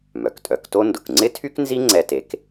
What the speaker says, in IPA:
m œ˩ k tʼ œ˩˥ k t o˥ n d ʊ˩ k ŋ͡ǀ ɪ˥ tʰ y˥ k n z i˥ ŋ͡ǀ ɛ˧ t e˩˥ k

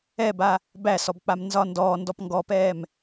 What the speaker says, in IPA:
ɛ b a | b æ s ɔ b k͡p a m n z ɒ n d ɔː n d ɔ p ŋ ɡ ɔ p ɛː m

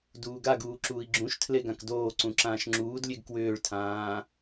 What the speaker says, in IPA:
d uː ɡ a ɡ uː ǁ uː i̯ ɡ͡ǁ ũ ʃ tʰ l e ɡ ã k d oː ǀ ũ ǁ ãː ʃ ŋ͡ǁ uː d lʲ e ɡ k w ʏː ɭ tʰ ãː

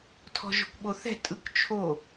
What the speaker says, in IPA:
tʰ ɔ̤ ʒ ɔ̤ kʷ ɓ o θ ɛ̤ tʼ ɯ k t͡ʃʰ o

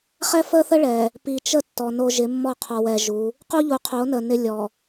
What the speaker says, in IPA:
χ ɛ˦ f əː˦ θ ə˦ ɭ ɛ˨ | p i˨ t͡ʃ ə˦ tː ɔ˨ n o˦ ʒ ɪ˨˦ mː ɔ˦˨ qʰ ɔ˨ w ɛ˨ ʒ u˨˦ | q u˦ ʎ u˨ qʰ o˨˦ n əː˨ n ɪ˦ lʲ ɔ˨

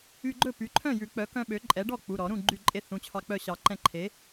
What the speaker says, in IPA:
y˧ ɡ͡ǃ ɵ˥˩ p y˩˥ ǃʰ œ̃˥˩ j ʉ˨˩˦ k͡p œ˩˥ k œ̃˧ ɓ ø˩˥ ǃʼ ɛ˩˥ ɖ ɔ˥˩ k͡p u˩˧˩ ɾ ɔ˨˩˦ ɾ ũ˥˩ ɡ͡ǃ y˥˩ ǃʼ e˥˩ θ ũ˩˧˩ t͡ɕʰ ɑ˧ k͡p œ˥˩ ɕ ɑ˨˩˦ ǃ ɛ̃˥˩ ǃʰ e˩˥

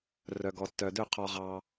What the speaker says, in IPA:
r œ˨ ɡ ɔ˨ tː œ˨ d ø˦˨ qʰ ɔ˨ ʁ ɑ˨

